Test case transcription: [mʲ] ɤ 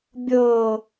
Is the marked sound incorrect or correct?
incorrect